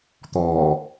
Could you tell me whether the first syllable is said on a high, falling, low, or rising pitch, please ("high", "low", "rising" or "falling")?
low